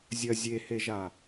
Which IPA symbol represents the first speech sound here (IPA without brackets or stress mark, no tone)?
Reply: zʲ